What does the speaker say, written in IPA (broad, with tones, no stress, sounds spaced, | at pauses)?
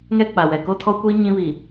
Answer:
ŋ ɛ˦ k͡p a˨ w ɛ˨ k o˦ tʰ ɔ˦ kʷ iː˦ ɲ ĩ˦ β iː˨